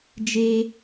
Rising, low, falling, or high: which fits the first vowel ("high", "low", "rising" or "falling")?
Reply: low